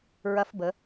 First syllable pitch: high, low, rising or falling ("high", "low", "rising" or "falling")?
rising